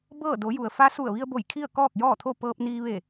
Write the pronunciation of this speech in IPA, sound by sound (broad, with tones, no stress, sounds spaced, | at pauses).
b ɤː˥˨ d o˩˧ j u˩ ə̯ f a˧˥ s u˧˩ ə̯ ʋ i˧ ə̯ b o˧˩ j kʰ i˥˨ ə̯ k ɔː˥˨ k̚ j ɔː˥˨ t̪ʰ o˥˨ p ɤː˧ p̚ n iː˧ ʋ e˧˩